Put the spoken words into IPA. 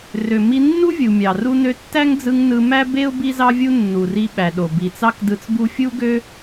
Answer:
r ø˩ m i˧ nː u˥ vʲ u˩ mʲ ɑ˩ r u˧ n ø˧ tː æ˥ ŋ d͡z ɯ˧ ŋ n ɯ˧ m æ˥ b e˥ ʊ̯ b i˥ z ɑ˥ vʲ u˥ nː u˩ r i˧ ɓ æ˩ ɗ o˩ b i˩ t͡s ɑ˥ k d ɯ˧ t͡s b u˥ fʲ u˥ ɡ ø˥

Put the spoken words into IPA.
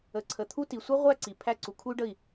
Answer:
ə˧ ǀʰ ə˧˩ t̪ʰ u˥ t i˧ sʷ i˥ ʁʷ æ˥˧ ǀ i˧˩ pʰ æ˥˧ ǀ u˧ kʰ u˥ y̯ ɖ ə˥˧ i̯

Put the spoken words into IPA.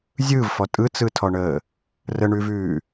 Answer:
zʲ ɯː v f ɔ tʼ ɯ t͡s ɯ tʰ ɔ ɳ əː | r ə ɳ ʉ v ʉː

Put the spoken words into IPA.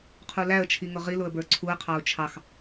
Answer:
qʰ u l æ ə̯ t͡ʃʰ i ŋ ʊ ʁ i l ʊ ə̯ b ə˞ ǀʰ u ə̯ qʰ ɑ ʊ̯ t͡ʃʰ ɑ x

